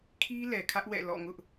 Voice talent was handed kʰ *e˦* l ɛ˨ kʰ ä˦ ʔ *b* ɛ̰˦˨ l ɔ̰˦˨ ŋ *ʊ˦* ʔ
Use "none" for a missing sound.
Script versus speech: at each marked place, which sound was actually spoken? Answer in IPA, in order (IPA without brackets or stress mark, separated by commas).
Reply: i˦, w, ʊ˦